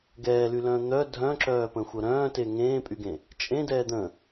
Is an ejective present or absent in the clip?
present